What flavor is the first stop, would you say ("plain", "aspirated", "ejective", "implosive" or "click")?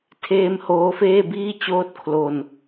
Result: aspirated